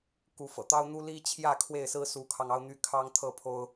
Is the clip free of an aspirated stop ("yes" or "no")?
no